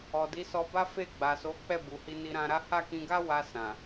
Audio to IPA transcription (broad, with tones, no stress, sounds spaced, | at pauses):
ɔ˨ d i˨˦ s ɔ˧ b a˦ f e˦˨ ɡ͡b a˨ s o˨˦ k͡p ɛ˦˨ b u˨ h i˧ n i˧ ɾ ã˧ ɾ a˦ h a˦˨ k ĩ˧ ɡ a˦ w a˧ s ã˨